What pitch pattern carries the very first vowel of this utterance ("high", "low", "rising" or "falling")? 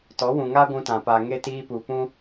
rising